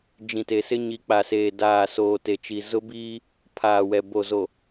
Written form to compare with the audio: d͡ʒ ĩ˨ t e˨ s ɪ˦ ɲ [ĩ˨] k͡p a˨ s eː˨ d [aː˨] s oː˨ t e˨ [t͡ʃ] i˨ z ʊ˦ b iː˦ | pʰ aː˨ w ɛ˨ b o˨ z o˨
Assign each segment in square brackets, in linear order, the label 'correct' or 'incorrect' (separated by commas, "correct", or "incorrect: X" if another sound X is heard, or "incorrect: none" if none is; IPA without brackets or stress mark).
incorrect: i˨, correct, correct